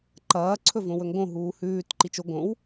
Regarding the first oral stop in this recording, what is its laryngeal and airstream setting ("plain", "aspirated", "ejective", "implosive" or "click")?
click